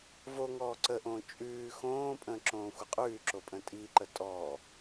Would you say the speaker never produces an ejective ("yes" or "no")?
no